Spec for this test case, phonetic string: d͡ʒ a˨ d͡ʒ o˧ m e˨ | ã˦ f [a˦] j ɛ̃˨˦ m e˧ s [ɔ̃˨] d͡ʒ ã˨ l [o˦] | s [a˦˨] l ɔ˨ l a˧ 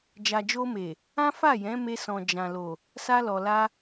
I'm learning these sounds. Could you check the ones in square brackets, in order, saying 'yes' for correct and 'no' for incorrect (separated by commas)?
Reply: no, yes, no, no